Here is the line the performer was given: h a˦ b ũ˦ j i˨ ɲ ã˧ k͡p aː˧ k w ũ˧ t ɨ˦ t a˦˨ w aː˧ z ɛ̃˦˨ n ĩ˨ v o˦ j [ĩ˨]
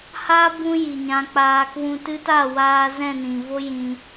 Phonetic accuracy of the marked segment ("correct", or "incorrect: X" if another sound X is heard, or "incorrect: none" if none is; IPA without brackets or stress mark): incorrect: ĩ˧